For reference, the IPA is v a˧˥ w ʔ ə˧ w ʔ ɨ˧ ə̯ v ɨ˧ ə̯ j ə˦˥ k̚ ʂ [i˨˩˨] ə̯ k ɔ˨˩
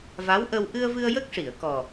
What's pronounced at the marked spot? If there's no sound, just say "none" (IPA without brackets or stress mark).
i˨˩˨